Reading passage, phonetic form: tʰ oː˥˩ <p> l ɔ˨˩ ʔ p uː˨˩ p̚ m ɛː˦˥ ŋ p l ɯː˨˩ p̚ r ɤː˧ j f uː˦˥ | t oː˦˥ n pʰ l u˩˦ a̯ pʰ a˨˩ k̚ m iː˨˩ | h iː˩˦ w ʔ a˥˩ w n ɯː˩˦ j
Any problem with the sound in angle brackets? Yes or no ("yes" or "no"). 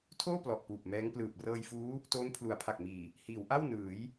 no